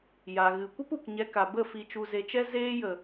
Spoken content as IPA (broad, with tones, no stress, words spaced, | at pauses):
ja˨ɣɨ˨kʷə˦p u˨kɲɛ˧ka˨bə˦˨ fi˨t͡ʃu˨ze˨t͡ʃɛ˧ zeː˧jə˨